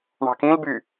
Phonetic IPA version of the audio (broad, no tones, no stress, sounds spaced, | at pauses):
ɳ ɑ̤ k ĩ l b y